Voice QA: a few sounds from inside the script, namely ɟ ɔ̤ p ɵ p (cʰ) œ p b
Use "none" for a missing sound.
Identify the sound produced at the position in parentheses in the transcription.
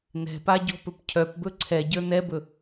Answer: cʰ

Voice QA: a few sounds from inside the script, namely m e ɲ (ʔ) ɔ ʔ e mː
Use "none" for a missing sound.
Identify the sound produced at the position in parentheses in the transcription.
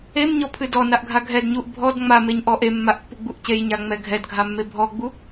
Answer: ʔ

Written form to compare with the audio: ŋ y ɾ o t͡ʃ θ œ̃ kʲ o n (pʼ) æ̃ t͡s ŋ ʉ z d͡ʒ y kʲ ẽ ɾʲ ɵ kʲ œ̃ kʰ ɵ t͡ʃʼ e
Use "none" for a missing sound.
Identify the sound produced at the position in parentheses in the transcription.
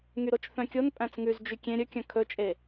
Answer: pʼ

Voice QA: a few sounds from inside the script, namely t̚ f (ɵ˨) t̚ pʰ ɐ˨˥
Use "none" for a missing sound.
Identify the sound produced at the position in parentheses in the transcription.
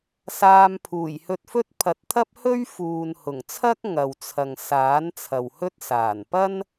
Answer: ɵ˥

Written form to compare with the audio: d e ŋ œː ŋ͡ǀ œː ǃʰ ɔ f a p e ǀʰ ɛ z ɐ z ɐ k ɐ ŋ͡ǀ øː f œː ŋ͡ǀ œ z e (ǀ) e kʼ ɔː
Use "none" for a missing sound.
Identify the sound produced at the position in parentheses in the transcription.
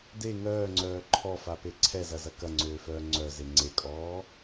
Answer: ŋ͡ǀ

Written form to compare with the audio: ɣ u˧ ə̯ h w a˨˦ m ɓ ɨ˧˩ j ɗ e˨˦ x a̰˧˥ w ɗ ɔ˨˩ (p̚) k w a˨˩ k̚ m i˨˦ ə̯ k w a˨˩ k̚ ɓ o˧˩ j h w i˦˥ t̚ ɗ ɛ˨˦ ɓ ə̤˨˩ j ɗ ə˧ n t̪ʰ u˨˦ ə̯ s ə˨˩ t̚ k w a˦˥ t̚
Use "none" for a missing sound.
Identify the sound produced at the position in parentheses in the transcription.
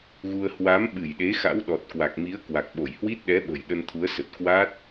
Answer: t̚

